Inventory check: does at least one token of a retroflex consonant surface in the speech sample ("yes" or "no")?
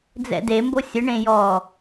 yes